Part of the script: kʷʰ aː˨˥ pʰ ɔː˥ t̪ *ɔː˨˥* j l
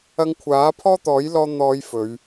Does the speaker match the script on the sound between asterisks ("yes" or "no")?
yes